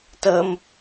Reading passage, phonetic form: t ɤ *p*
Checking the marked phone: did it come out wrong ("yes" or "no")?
yes